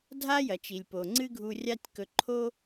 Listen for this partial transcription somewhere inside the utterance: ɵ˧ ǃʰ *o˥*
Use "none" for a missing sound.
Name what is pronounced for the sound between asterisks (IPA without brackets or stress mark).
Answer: o˥